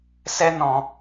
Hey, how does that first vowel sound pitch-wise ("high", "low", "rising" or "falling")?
high